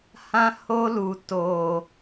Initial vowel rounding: unrounded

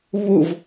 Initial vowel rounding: rounded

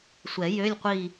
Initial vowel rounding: unrounded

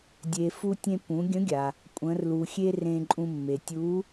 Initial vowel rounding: unrounded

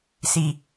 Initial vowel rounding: unrounded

